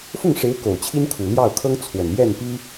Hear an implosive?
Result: no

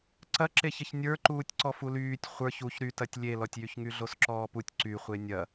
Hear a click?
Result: yes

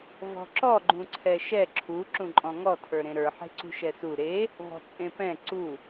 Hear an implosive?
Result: no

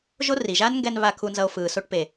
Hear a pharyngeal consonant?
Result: no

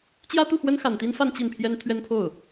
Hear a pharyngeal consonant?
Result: no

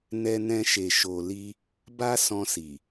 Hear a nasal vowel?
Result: yes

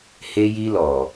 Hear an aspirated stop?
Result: no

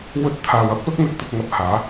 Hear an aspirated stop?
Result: yes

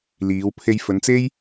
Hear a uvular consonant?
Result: no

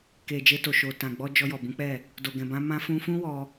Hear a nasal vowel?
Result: yes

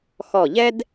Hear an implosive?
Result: no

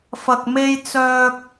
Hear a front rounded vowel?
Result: yes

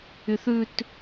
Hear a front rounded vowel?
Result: yes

